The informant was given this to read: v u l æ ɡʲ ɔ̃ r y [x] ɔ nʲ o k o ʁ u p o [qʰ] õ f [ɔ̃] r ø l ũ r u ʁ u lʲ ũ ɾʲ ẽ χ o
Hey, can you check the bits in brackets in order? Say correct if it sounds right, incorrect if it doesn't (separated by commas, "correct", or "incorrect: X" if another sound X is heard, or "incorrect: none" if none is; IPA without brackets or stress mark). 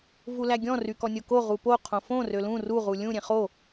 incorrect: k, correct, incorrect: õ